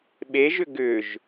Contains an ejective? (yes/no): no